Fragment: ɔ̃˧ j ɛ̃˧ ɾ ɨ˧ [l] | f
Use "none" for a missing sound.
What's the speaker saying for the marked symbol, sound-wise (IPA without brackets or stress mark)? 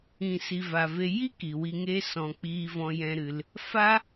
l